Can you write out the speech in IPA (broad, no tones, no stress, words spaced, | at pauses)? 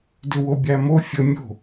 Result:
dʏwobʲæmo fʲə mʲo̤